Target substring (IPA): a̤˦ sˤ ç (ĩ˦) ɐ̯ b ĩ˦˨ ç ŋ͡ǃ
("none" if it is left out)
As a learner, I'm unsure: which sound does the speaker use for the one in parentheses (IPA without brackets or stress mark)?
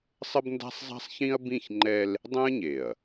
ĩ˦